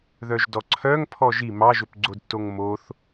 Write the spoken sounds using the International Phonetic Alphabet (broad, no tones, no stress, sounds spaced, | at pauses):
ð œ ʒ d ɔ ǀʰ œ ŋ pʰ ɔ ʒ i m ɑ ʒ ɵ p ɡ͡ǀ o d tː o ŋ m o θ